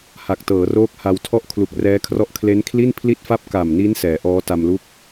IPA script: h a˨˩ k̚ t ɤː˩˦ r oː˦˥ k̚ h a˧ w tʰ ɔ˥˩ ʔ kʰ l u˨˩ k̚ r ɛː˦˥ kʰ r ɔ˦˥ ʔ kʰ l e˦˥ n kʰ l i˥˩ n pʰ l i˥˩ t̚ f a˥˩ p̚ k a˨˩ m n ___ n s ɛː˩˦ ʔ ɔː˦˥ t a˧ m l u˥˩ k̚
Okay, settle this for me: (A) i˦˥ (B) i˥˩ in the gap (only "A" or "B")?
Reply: A